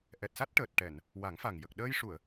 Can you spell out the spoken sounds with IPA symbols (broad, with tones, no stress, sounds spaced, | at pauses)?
ʔ ɛ˨˩ t̚ s a˦˥ t̚ ʈ əː˨˩ t̚ ʈ ɛ˨˩˨ n | w a˨˩˦ ŋ f a˨˩ ŋ j ə˨˩ k̚ ɗ əː˧ j ʂ u˨˩˨ ə̯